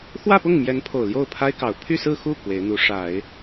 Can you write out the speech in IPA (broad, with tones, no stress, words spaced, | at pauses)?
xwä˥˧pʊ˥˩ŋmjɛ˧˥npʰo˨˩ʊ̯ ljo˥˩ʊ̯pʰa˥ɪ̯kɑ˨˩ʊ̯ pʰy˥˧sɹ̩˥˧xu˥˩ kwe˧˥ɪ̯n̪u˧˥ʂa˨˩˦ɪ̯